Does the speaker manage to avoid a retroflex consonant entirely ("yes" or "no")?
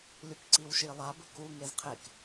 yes